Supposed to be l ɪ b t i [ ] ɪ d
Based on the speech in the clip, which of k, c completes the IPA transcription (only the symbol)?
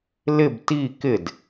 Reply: k